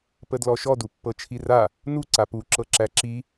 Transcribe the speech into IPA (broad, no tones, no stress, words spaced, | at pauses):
pədlɔʃɔ dupːɤt͡ʃʰira | nu ǀapu ǁɤǁæǁi